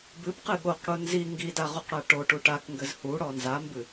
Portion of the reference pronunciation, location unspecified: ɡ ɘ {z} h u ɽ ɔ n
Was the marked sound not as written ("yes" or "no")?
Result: no